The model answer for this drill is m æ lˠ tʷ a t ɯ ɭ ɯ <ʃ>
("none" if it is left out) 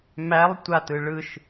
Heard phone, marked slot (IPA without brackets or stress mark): ʃ